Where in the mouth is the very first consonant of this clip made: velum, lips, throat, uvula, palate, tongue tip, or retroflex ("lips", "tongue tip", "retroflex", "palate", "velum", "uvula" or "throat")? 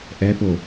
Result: throat